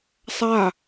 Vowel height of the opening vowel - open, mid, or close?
open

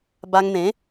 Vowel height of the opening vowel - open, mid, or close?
open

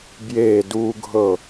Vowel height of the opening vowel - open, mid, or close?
mid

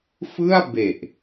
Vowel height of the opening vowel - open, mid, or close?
close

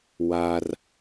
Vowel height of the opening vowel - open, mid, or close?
open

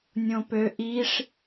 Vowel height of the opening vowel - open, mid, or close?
mid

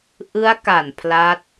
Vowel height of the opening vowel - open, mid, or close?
close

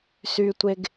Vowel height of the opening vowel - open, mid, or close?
close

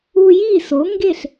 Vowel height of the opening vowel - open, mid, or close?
close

